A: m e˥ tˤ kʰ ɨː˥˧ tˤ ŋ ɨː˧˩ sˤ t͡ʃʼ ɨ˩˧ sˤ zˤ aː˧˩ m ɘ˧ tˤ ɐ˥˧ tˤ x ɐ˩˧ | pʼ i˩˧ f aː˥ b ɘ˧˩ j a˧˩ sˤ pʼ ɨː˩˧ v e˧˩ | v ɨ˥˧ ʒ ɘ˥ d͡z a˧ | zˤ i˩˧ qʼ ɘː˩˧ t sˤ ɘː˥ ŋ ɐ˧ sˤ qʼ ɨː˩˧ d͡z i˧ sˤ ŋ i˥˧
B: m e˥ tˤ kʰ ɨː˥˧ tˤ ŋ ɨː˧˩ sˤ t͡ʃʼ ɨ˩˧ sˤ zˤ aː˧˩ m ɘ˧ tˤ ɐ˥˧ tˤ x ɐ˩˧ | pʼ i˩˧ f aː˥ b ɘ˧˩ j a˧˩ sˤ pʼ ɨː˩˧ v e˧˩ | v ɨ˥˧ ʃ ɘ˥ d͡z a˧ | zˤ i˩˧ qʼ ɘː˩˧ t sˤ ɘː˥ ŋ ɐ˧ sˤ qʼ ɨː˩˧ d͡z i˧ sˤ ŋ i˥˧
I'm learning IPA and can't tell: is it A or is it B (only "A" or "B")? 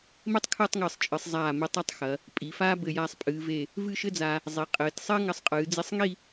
B